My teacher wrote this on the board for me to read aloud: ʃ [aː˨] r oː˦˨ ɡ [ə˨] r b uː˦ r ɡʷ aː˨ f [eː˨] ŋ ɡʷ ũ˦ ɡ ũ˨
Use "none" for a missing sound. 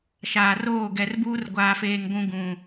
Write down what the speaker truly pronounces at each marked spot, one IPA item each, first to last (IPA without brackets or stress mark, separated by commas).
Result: aː˨, ɛ˨, eː˨